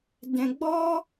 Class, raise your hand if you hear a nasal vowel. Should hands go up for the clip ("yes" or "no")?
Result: yes